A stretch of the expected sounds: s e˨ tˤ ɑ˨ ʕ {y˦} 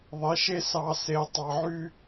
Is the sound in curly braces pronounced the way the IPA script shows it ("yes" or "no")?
yes